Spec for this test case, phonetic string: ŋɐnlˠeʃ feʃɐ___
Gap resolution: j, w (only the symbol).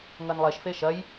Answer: j